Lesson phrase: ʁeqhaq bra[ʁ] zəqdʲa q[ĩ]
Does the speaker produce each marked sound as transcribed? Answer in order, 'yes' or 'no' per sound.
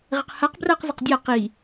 no, no

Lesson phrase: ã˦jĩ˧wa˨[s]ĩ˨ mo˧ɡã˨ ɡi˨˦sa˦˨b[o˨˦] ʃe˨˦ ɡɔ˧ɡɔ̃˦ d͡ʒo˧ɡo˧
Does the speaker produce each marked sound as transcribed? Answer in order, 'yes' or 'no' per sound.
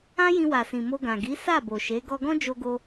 yes, no

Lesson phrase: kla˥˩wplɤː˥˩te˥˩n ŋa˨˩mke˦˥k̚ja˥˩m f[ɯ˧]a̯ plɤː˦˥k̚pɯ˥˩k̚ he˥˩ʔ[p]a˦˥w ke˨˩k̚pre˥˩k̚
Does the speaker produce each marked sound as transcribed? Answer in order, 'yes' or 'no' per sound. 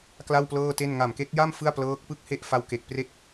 no, no

